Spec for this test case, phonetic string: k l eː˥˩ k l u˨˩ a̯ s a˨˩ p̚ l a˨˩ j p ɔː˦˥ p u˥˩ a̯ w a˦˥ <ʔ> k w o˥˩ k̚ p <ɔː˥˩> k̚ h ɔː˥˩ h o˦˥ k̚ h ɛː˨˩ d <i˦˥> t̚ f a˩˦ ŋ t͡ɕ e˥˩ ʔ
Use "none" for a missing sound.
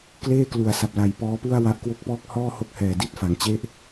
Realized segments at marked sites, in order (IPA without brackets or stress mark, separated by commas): ʔ, ɔː˥˩, i˦˥